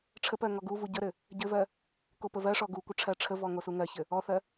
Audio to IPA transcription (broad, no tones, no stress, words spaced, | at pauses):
ʈ͡ʂʰəpɜ ŋɔɡuvu ɟəɾɘ | ɟɘvɜ | kopəvɜʂɔ ɡukʷə ʈ͡ʂʰɜʈ͡ʂʰəvɔ ŋosuŋɜçɘ | ɔθɜ